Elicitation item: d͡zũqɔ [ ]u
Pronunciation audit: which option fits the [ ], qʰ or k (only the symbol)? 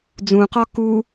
k